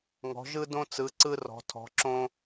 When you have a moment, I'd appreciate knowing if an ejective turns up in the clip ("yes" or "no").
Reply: no